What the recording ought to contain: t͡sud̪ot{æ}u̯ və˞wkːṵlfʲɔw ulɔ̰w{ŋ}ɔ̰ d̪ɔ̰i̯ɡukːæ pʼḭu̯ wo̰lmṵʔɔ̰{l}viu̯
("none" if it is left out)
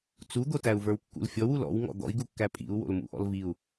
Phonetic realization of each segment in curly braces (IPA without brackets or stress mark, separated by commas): æ, ŋ, l